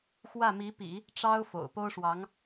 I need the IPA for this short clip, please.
x w ä˥˩ m i˧˥ p ḭ˨˩˦ | ʈ͡ʂ ɑ˥ ʊ̯ f o̰˨˩ ʊ̯ p o˥ ʊ̯ ʂ w ɑ˧˥ ŋ

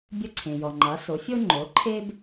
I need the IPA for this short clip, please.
bʲ ə˥˩ ǀʰ ẽ˩ j ɔ˩ ŋ͡ǃ a˩˥ s o˩˥ fʲ o˥ ŋ͡ǃ o˩˥ ǃʰ e˥ b

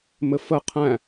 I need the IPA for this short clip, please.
m ɘ f ə qʰ æ̃

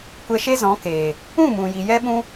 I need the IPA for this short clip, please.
kʷ ɛ˧ ʃ e˦ z ɔ̃˨˦ k eː˨ | ũ˦˨ m ũ˨ j i˨ j ɛ˦ ɓ ũ˦

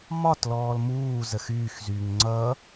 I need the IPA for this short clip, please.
m ɒ t l ɔː l m uː z ə x yː x z yː ŋ ŋ͡ǀ ʌ

